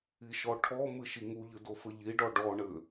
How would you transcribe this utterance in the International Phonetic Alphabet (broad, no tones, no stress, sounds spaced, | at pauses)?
i ʃ ɔ ʈʰ ɔ m ɨ ʃ i ŋ u ʎ ɨ d o f ɘ ʎ i ɖ ɔ ɖ ɔ ɳ ɘ